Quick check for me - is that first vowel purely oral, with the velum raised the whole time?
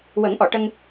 yes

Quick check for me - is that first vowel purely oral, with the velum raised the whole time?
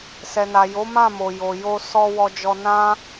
yes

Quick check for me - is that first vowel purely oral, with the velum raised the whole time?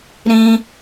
no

